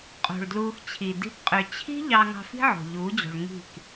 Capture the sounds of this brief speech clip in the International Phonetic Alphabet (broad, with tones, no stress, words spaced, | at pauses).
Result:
qʼo̤˨ɭdluː˧xt͡ɕʰi˨ di̤˧pqʼø˨ t͡ɕʰi̤˦ ʎɑ˧ŋɑ̤˧fi̤˦ ʕo̤˨ʎuː˨˦d͡ʑo̤˨ɭ ŋi̤˦˨k